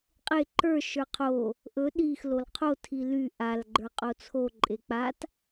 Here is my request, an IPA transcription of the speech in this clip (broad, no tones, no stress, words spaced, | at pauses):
qʼe ǃə˞ ʃə˞qʰo | ʔɵ ɗix lolqʰo tʰily ʔal ɡ͡ǃə˞qʼot͡sʰo ǃʼek͡pat